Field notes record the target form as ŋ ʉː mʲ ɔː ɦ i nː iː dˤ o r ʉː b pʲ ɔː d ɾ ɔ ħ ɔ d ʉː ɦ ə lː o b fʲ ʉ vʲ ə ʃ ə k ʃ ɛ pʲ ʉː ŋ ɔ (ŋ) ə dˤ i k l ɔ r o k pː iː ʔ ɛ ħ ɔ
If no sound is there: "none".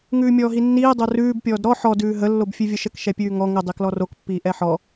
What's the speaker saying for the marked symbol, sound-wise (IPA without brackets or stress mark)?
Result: ŋ